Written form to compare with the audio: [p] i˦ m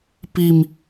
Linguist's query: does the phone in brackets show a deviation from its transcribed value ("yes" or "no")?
no